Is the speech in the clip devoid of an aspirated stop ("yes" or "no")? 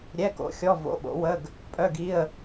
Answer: yes